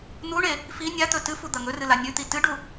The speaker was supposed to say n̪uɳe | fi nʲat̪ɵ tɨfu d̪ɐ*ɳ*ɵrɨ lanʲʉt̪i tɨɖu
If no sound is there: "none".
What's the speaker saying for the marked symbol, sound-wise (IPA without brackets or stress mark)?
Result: ŋ